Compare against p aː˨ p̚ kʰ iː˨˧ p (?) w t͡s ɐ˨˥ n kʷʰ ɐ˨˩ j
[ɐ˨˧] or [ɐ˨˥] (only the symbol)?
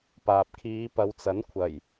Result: ɐ˨˧